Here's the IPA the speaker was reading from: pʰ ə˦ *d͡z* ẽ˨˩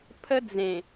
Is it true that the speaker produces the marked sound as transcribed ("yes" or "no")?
yes